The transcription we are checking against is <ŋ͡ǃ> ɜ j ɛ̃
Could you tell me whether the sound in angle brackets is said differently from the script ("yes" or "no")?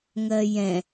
yes